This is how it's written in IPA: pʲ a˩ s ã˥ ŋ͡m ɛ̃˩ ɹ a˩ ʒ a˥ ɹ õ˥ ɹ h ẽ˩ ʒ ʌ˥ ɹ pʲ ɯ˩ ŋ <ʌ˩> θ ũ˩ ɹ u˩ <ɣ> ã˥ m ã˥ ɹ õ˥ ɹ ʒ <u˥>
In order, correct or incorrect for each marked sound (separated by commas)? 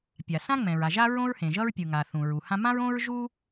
incorrect, incorrect, correct